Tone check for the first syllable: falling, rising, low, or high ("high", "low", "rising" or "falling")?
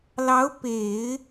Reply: rising